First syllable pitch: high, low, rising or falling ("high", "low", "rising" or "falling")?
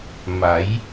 rising